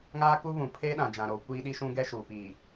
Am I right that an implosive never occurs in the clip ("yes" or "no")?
no